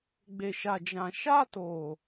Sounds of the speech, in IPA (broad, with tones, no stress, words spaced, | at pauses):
ɡ͡be˨ʃa˨d͡ʒã˨ ʃa˦toː˨